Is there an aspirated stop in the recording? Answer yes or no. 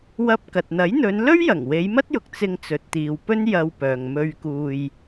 no